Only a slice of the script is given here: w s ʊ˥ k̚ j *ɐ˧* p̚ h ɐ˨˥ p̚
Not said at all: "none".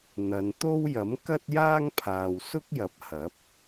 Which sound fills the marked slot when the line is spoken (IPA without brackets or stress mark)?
ɐ˨˥